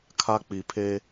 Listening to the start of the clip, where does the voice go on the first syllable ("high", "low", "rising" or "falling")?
high